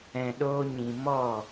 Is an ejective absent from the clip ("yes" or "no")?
yes